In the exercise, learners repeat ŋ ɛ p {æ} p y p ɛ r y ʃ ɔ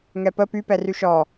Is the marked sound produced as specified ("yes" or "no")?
no